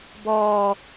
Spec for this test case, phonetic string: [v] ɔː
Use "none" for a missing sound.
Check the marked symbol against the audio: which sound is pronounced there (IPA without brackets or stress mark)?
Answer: b